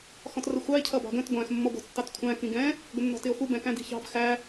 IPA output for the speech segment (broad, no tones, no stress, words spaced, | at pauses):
xɔ̃trəxʷɑe̯ cʰʌbɑ̤ɡə̃t ɡʷæ̃x mːɔɡʷɑ̤tːɑtkʷʰæ̃ kĩɡɛ̃ | ɡʷənːɔ̤tɪo̯xu bɛ̃kæ̃di̤çɑ̤b xæ